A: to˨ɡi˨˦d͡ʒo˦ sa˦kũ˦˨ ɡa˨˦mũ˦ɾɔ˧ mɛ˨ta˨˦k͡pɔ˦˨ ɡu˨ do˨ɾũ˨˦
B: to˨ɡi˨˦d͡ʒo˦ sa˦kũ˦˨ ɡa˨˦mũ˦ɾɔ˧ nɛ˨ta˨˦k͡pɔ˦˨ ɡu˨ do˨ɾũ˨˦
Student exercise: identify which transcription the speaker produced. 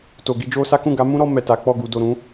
A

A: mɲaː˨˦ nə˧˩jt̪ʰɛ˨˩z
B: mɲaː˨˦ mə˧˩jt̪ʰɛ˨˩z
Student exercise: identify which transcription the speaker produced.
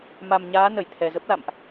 A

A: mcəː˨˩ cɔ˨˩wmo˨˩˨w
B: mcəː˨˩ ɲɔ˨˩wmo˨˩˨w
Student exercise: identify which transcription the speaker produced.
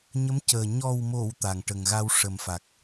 B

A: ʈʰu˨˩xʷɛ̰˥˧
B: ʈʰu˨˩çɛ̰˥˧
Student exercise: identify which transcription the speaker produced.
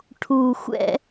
A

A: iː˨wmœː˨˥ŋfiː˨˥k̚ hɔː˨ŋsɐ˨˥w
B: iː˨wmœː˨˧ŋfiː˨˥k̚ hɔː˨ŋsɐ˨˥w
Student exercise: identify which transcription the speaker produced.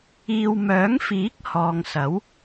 A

